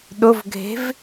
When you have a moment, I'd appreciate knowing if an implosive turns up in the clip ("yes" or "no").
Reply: yes